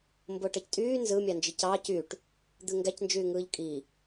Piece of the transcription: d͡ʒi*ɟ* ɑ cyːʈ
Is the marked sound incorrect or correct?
incorrect: c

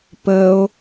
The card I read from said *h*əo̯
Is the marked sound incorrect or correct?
incorrect: p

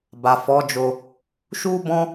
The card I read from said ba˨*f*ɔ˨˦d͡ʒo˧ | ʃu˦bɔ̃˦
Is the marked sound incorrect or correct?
correct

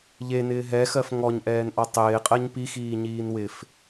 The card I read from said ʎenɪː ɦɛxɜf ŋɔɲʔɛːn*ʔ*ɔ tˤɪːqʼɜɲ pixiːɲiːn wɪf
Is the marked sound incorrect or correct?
correct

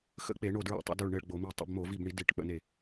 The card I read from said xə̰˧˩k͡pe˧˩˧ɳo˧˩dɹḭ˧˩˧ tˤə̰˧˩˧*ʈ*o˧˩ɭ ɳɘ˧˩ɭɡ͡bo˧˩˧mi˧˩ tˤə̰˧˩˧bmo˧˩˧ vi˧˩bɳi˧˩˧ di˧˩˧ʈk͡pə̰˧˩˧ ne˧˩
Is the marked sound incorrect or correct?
incorrect: d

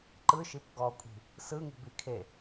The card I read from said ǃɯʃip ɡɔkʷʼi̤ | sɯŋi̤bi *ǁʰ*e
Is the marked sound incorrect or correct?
incorrect: kʰ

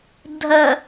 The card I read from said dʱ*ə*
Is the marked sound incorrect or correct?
correct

